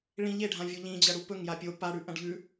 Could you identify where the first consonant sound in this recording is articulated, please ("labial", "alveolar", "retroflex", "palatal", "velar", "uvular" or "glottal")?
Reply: retroflex